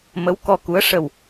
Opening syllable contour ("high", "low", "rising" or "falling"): rising